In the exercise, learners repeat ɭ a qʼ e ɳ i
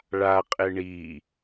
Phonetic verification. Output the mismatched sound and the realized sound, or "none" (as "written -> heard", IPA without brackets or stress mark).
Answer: none